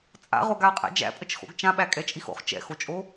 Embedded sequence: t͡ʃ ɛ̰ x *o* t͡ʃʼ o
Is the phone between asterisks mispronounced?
no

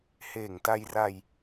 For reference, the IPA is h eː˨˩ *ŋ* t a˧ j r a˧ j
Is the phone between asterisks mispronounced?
no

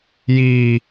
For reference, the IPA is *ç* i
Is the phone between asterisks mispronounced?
yes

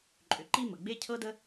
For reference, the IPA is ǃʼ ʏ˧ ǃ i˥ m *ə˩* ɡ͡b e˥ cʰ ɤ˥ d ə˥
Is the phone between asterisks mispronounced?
no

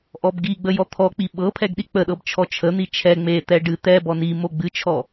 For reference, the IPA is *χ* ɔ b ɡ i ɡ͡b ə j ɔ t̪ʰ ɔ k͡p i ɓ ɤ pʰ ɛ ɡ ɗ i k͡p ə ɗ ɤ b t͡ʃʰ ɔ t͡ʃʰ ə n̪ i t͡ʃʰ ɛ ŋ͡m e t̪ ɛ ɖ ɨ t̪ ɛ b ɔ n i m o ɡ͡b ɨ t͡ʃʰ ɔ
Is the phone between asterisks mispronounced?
yes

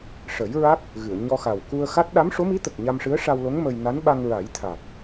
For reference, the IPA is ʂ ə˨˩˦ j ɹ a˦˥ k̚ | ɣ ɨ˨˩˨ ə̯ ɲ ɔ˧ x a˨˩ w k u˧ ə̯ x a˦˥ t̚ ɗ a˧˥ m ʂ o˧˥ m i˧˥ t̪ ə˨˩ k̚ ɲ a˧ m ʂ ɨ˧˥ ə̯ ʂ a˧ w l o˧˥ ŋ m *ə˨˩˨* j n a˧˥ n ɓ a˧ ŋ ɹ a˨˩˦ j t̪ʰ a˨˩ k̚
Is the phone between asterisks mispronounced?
yes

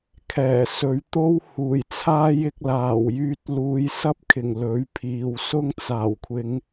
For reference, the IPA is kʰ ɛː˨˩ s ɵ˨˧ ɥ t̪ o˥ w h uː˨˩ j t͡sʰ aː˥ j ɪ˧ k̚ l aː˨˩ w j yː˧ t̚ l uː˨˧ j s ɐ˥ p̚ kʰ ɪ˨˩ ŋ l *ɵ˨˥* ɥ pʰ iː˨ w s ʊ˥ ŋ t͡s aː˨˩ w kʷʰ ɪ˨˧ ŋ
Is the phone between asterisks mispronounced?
no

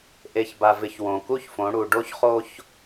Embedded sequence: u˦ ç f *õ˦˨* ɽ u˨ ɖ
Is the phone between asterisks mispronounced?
yes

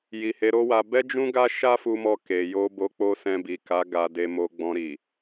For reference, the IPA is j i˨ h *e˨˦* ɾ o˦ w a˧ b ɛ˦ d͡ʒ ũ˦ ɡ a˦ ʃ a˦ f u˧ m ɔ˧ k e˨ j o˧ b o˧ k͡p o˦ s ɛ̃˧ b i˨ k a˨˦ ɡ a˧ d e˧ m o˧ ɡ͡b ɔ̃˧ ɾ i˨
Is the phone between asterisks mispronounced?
no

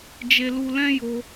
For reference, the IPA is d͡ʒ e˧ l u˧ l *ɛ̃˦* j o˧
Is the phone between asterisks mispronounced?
no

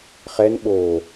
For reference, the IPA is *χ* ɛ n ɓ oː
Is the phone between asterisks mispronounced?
no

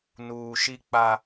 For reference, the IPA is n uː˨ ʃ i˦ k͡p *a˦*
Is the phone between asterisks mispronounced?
no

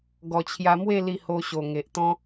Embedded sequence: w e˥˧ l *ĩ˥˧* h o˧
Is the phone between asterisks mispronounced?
yes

